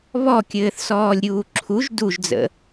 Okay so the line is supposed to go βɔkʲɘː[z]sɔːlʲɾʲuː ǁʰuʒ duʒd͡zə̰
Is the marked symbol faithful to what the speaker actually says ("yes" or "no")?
no